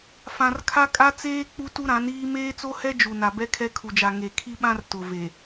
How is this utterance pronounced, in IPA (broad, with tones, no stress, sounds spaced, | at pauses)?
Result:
f ã˨ r kʰ a˦ kʼ a˦ t͡s eː˦ k͡p u˦ t u˦ ɾ ã˨˦ n iː˦ m eː˦ t͡s o˦ h ɛ˦ d͡ʒ u˨ n a˨ b ɛ˦ kʰ ɛ˦ kʰ u˨ d͡ʒ a˨ ŋ e˨ kʰ i˦ ɓ ã˦ r t ʊ˨ v e˨